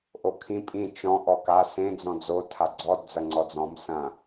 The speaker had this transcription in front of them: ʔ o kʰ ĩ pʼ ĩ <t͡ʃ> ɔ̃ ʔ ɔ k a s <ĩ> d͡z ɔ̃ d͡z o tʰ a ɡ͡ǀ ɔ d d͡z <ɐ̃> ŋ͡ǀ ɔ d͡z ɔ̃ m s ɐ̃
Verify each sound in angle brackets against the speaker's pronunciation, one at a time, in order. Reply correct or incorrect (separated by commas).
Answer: correct, incorrect, incorrect